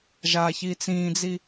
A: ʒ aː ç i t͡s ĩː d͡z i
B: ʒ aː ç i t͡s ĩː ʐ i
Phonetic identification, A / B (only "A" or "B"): A